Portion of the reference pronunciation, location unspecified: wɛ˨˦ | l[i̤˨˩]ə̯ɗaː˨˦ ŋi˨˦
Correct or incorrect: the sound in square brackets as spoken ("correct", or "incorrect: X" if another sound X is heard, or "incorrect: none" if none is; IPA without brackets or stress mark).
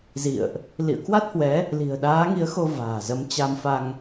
correct